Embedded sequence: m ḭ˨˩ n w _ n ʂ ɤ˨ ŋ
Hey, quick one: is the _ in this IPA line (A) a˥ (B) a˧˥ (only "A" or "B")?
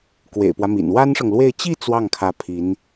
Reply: A